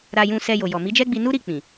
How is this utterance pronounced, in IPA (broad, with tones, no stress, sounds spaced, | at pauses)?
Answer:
ɾ a˧ j ũ˧ s ɛ˧ j o˨ j ɔ˨ m i˨˦ d͡ʒ ɛ˦ ɡ͡b i˧ n u˦ ɾ i˦˨ k͡p ĩ˨